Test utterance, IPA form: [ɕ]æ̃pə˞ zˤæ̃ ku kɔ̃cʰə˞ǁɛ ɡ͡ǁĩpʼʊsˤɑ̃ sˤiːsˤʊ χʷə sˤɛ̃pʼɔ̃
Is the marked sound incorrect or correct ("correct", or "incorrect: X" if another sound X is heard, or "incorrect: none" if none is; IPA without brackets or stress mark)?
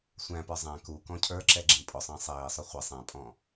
incorrect: sʷ